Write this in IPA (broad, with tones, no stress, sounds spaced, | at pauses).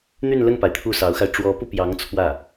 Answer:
n̪ y˥˧ n l ə˥˩ n p a˩ ɪ̯ t̪ʰ u˥˩ s ɑ˧˥ ʊ̯ x a˧ ɪ̯ ʈ͡ʂ w ɔ˧˥ p u˧ p j ɑ˧˥ ŋ t͡sʰ w ä˥˩